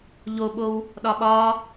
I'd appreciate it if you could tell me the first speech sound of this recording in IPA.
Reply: ʎ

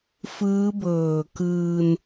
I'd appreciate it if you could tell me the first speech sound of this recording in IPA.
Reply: f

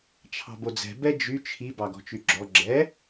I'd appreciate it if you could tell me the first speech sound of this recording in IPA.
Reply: t͡ʃʰ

